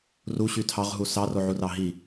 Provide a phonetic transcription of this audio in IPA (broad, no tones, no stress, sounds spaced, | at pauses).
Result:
r u ɕ y tʰ ɑ ʁ ɦ u s ɑ r o ʕ u r ɑ ɦ i